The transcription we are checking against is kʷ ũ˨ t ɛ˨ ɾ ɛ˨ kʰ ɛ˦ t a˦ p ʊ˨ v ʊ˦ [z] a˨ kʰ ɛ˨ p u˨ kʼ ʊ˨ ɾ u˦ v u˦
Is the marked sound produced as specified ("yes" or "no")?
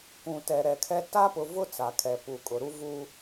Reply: no